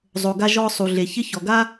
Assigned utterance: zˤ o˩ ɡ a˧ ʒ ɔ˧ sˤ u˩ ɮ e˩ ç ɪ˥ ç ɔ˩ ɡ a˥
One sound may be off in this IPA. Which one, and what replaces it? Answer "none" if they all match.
none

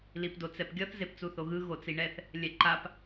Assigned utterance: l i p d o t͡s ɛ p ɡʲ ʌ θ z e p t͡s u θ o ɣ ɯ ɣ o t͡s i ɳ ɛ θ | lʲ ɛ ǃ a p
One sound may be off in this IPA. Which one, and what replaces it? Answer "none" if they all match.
none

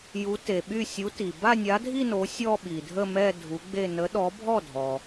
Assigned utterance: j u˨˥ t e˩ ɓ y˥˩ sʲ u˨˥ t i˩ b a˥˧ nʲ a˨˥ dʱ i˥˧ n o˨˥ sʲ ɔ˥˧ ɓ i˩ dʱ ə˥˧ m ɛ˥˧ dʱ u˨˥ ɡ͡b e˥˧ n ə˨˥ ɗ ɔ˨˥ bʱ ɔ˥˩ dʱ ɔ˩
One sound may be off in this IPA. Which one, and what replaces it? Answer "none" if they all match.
none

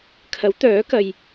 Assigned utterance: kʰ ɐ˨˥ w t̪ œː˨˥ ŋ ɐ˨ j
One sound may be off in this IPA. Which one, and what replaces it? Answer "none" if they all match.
ŋ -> k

